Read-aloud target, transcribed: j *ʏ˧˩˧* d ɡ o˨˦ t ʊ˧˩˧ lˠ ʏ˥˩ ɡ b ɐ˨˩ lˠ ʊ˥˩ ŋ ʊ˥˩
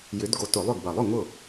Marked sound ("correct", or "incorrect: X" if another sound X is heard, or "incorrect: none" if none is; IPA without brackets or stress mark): incorrect: ʏ˨˦